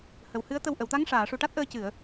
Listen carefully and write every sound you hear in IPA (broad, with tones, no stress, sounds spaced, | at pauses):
h ə˨˩ w h ɨ˧˥ ə̯ t̪ ə˧ w ʔ ə˨˩˨ w t̪ a˧˥ ŋ ʂ aː˨˩˨ ʂ u˨˩ ʈ a˦˥ t̚ ʔ əː˧ c ɨ˨˩˨ ə̯